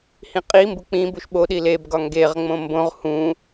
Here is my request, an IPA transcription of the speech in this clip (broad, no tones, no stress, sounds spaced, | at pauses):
h ĩ qʼ i m b u k͡p ĩ b u ʃ ɓ o ɗ i l e b ɡ ɒ ŋ ɡ e ʁ ŋ͡m õ m b õ ʁ h ũ